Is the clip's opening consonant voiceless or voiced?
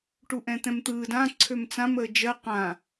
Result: voiceless